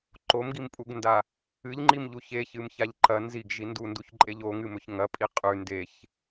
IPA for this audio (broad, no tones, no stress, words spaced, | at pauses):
ǃomɡimpʼuɡnda | ɨʎŋ͡ǃimʎu çeçɨmçaʎ ǃɐ nziɡʒi ndunduçǃʼeʎ oŋɨmɵç ŋɐpʼi qʼʉ ndeç